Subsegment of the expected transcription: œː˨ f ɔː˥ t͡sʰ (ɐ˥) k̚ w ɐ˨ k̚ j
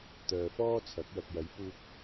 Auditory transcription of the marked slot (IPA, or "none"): ɐ˨˥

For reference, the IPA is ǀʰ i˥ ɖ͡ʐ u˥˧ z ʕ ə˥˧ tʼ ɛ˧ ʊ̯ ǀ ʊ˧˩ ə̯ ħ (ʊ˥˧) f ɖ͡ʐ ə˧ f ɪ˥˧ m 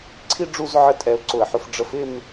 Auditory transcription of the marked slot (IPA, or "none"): ʊ˧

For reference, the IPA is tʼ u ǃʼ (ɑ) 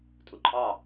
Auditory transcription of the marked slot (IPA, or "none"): ɑ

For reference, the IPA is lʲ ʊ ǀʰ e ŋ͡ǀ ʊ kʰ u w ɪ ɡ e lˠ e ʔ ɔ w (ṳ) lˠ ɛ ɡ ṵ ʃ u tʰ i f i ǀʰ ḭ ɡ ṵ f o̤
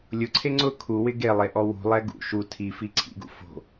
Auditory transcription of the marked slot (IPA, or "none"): ṳ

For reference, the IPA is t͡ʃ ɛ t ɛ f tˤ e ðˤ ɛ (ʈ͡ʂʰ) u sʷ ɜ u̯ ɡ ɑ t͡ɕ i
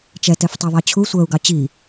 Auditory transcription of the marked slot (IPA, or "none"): t͡ɕʰ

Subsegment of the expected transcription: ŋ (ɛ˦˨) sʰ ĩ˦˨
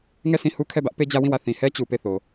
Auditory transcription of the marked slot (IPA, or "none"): ɛ˦˨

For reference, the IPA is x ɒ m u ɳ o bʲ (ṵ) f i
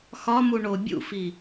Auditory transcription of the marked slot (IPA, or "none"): ṵ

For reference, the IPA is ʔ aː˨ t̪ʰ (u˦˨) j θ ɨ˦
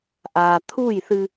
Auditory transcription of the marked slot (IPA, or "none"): u˦˨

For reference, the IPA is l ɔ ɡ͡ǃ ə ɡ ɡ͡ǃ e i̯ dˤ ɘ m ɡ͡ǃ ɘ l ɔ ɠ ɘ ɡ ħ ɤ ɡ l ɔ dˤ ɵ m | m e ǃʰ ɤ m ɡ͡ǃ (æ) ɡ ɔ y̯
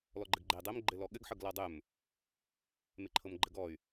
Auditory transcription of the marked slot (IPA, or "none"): ə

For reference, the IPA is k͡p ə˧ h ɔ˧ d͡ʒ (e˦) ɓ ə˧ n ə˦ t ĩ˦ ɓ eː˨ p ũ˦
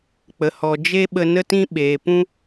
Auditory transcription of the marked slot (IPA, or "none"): e˦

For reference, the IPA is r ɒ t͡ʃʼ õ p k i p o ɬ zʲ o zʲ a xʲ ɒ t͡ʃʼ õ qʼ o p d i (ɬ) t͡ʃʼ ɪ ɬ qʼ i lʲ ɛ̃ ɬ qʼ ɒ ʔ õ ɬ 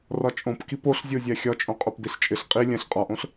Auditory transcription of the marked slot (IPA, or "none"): ɬ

